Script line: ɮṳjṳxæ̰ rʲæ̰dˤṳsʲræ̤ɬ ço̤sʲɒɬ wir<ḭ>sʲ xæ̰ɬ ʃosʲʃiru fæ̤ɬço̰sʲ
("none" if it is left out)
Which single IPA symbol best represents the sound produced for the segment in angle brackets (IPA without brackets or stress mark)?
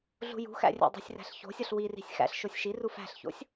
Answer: i̤